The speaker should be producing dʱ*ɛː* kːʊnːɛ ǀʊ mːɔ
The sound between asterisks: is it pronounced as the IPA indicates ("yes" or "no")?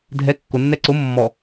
no